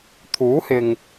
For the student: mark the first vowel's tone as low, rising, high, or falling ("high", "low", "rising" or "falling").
rising